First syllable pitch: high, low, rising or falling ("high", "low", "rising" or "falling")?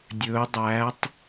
rising